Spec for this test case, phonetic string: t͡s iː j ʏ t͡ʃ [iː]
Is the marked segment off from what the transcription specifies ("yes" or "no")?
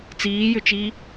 no